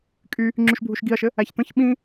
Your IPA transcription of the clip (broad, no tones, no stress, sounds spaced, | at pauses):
kʼ y | ŋ͡ǁ y ʃ bʱ u ʃ ɡ i ɐ̯ ʃ ɘ | æ ç t̪ ə̃ ç ɓ ĩ